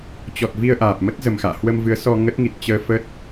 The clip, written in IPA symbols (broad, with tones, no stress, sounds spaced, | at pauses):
t͡ɕ ɔ˨˩ t̚ v i˧ ə̯ ʔ aː˨˩ p̚ m ə˦˥ t̚ z ə˨˩ m x a̰ː˧˨ h w ə˧ m v ɨ˨˦ ə̯ s ɔ˧ ŋ ə˦˥ t̚ ŋ i˨˩ t̚ t͡ɕ əː˧ f ə˦˥ t̚